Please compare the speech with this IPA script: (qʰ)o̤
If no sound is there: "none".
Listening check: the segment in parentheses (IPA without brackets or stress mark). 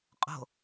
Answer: qʼ